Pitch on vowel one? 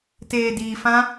low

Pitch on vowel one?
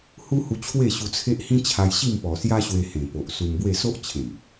high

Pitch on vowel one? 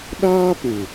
high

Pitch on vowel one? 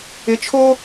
rising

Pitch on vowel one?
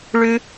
high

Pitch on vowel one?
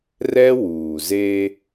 high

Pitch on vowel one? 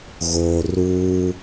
low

